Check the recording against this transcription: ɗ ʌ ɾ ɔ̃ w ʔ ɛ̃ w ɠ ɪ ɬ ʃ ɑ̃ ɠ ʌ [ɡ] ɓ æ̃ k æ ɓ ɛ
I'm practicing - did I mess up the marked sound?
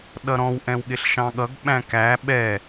no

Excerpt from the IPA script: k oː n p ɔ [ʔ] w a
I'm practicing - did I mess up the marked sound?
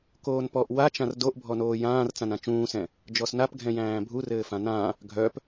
no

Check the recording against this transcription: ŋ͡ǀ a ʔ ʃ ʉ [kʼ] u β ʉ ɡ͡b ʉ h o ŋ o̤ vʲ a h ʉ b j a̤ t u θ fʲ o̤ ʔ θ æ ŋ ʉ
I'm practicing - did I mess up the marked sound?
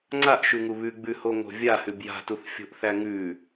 yes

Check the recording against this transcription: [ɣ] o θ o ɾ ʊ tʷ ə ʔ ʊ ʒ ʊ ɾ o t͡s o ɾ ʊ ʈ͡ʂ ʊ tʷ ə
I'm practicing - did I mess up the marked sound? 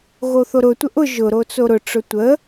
no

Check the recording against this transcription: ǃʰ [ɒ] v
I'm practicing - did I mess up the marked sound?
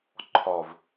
no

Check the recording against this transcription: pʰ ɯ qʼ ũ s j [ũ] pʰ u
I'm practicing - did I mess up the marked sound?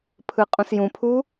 no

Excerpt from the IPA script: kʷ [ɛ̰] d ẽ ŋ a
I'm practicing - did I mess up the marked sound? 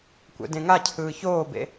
no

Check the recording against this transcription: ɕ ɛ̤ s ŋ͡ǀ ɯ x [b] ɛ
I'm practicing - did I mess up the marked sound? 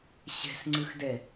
yes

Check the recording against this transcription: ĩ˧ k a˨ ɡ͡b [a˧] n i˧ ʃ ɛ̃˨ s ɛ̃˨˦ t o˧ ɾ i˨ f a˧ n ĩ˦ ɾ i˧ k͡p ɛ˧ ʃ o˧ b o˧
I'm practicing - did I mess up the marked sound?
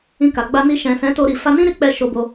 no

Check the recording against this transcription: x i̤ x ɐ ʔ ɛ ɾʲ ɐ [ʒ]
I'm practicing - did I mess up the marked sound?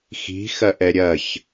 yes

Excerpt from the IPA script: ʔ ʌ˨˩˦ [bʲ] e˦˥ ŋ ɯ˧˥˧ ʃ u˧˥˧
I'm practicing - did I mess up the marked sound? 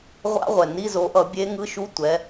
no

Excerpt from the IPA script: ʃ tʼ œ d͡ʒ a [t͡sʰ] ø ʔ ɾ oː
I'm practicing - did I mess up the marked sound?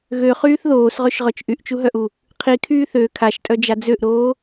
yes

